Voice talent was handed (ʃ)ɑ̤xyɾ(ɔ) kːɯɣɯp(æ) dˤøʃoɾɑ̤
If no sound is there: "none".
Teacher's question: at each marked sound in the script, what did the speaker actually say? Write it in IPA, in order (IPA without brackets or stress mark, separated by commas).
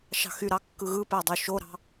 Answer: ʃ, ɑ, æ